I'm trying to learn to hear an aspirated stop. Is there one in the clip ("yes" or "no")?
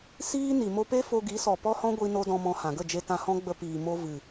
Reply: no